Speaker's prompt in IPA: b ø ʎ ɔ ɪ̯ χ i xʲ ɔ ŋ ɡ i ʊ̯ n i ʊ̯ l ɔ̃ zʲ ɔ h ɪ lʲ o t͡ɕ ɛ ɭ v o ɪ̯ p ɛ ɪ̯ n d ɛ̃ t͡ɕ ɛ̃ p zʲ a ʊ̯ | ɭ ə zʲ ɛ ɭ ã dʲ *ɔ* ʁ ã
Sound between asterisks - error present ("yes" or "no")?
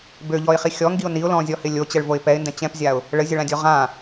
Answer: no